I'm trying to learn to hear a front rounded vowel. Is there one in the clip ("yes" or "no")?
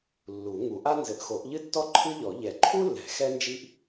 no